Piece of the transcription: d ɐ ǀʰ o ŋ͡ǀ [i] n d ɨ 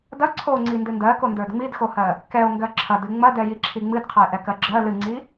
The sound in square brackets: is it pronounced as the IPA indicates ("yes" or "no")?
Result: yes